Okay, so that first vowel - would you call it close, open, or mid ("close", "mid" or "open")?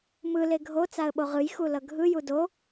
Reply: close